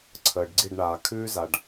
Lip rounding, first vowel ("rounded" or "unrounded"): unrounded